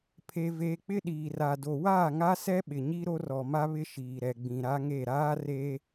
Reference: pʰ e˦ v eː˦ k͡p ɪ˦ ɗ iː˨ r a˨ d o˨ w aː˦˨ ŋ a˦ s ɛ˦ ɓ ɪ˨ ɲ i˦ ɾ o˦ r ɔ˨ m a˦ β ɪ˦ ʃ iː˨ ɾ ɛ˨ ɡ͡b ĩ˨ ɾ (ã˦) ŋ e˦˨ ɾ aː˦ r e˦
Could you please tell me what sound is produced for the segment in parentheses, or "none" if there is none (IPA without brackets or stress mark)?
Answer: a˦